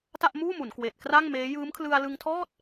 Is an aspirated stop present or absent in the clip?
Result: present